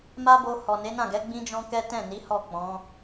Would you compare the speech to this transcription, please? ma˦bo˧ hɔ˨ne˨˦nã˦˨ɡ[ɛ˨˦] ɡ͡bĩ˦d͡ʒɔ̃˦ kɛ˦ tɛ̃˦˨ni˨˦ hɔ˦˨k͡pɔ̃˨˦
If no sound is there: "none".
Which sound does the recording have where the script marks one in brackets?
ɛ˨˦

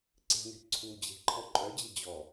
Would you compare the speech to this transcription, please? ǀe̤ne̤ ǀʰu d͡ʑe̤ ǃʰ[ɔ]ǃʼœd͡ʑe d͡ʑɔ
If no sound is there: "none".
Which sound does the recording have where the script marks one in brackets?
ɔ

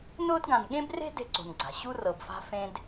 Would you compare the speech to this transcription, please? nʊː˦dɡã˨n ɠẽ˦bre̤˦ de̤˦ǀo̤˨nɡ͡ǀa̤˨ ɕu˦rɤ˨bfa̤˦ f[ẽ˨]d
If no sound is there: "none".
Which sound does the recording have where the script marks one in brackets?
ẽ˦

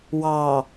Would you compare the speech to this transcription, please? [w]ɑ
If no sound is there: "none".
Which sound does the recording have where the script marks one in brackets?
w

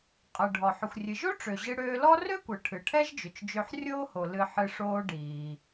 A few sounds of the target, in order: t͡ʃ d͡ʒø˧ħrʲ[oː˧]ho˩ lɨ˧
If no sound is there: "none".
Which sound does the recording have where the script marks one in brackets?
oː˥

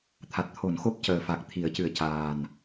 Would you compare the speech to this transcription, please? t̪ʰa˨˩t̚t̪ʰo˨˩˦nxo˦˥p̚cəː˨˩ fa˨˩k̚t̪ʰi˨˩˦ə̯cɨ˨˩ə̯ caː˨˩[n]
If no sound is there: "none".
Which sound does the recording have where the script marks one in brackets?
n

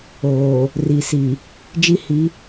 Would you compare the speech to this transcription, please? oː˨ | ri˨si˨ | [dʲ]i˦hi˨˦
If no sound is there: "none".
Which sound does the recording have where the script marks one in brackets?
d͡ʒ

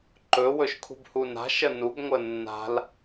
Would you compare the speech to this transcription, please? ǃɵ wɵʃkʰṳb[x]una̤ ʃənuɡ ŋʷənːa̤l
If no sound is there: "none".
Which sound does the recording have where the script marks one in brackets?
h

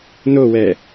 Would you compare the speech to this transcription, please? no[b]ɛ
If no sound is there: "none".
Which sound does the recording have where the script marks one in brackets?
w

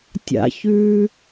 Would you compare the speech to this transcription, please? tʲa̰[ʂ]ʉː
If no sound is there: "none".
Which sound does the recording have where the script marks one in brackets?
ç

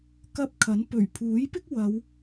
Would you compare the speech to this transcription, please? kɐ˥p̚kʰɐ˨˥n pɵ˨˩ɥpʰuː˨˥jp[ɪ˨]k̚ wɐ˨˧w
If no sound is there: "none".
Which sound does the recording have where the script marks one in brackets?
ɪ˥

